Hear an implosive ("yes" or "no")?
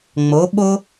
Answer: yes